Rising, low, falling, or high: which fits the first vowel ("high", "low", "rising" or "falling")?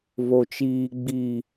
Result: low